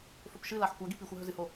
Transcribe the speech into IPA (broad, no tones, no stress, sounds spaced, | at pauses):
f ɵ p ʃ ɨ l a ħ kʷ a ɡ i p i xʷ a ɦ ɵ z ɨ h o